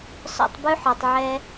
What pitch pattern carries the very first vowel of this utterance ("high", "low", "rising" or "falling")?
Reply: high